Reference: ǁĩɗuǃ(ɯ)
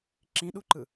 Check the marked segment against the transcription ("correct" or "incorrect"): correct